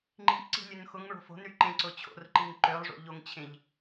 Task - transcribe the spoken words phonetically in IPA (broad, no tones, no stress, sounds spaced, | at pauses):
ŋ͡ǃ i̤ ʔ ǀ i̤ lʲ ø n x ʊ ŋ ɭ o̤ f o̤ n ɾ y ǃ ẽ ǀ ʊ t͡ɕʰ o̰ r ǃ i ŋ ǃ ø lˠ ʐ o̰ ʎ o ŋ t͡ɕʰ ẽ ʎ